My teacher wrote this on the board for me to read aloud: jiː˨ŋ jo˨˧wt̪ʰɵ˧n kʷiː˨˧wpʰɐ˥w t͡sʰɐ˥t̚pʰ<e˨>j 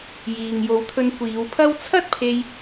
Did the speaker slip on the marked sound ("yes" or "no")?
yes